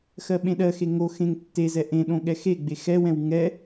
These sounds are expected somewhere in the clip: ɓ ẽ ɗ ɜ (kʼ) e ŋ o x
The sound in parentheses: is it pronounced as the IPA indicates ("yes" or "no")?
no